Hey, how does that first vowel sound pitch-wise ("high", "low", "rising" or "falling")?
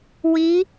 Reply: rising